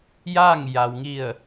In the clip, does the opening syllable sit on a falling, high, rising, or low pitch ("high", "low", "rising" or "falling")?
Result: falling